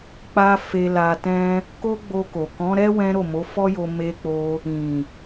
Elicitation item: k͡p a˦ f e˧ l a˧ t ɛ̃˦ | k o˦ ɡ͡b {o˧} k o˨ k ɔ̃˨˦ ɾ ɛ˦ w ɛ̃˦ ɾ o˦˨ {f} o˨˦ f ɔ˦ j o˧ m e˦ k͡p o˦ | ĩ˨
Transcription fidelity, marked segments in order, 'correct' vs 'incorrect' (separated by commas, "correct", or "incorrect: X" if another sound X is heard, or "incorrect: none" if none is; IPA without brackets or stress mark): correct, incorrect: m